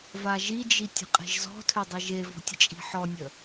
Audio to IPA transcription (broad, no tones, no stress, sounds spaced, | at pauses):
v a ʒ i d͡ʒ i tʲ ə̤ qʼ e̤ ʒ z ɔ̤ tʰ ø dˤ e ʒ e v ɔ̤ tʲ ə t͡ʃʼ i̤ ħ ɔ nʲ ə